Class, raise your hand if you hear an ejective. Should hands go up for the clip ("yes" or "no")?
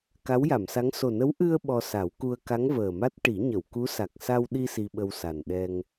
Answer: no